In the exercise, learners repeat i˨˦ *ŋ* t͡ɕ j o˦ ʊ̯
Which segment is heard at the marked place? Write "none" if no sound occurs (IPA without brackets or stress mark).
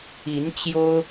n